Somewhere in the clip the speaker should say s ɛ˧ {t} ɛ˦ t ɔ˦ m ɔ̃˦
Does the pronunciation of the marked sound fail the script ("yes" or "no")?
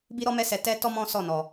no